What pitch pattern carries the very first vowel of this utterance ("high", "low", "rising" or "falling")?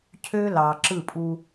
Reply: high